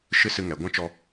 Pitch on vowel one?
high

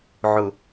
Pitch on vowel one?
low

